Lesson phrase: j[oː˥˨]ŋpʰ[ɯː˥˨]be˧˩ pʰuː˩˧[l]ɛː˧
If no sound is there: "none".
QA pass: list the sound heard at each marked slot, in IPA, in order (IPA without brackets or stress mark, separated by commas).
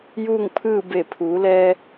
uː˥˨, ɯː˥˨, l